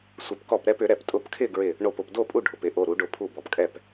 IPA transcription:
sʷ ɪ˨˩˦ p k ɔ˧˩ p ɾ ɛ˥˨ p ʏ˨˩˦ ɾ ɛ˩ p tʼ ʊ˧˩ p kʰ ɪ˥˨ ɡ ɹ ɪ˧˩ | ɳ o˧˩ p ʊ˧˩ p d o˥˨ pʼ u˥˨ ɖʱ ʊ˩ p ɪ˨˩˦ ʔ o˩˧˩ ɾ u˨˩˦ ɖ ʊ˨˩˦ pʰ u˧˩ b ɔ˩ p kʼ ɛ˧˩ p

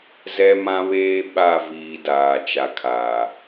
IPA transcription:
z ɛ˦ m ã˦ β eː˦ ɓ a˦˨ v iː˨ d aː˨ t͡ʃ a˨ kʰ aː˨

